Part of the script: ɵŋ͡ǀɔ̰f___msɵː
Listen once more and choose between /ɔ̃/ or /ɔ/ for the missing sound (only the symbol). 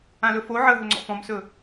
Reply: ɔ̃